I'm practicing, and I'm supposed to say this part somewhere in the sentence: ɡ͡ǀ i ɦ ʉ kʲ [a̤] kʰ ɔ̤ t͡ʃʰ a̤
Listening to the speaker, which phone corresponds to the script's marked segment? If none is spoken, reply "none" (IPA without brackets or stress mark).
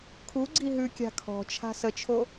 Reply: a̤